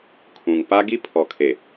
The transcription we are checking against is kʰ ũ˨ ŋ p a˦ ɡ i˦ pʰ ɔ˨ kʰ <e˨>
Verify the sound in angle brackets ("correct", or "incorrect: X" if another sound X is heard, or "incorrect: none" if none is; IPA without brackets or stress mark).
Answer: correct